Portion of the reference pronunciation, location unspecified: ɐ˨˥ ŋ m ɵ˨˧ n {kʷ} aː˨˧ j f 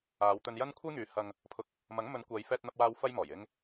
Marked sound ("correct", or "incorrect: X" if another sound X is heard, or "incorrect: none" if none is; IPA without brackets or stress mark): correct